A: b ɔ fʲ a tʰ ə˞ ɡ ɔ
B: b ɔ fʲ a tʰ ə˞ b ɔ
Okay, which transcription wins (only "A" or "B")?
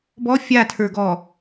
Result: A